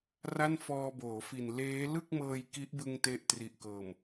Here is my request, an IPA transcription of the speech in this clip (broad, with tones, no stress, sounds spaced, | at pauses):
r a˥˩ n f ɔː˧ b oː˩˦ f i˨˩ n l eː˦˥ l ɯ˥˩ k̚ m ɤː˧ j k i˦˥ ʔ b ɯ˧ ŋ t e˦˥ ʔ t r i˨˩ ʔ k ɤː˨˩ m